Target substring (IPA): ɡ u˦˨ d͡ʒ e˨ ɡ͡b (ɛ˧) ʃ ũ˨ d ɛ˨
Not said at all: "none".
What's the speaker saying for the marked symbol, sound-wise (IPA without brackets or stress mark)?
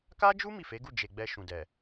ɛ˧